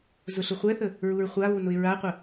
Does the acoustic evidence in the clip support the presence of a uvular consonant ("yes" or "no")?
yes